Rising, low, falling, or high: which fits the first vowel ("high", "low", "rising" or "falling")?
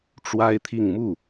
high